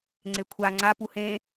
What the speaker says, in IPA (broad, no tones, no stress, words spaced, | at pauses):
ŋ͡ǀekʷʰa ŋ͡ǀa puhẽ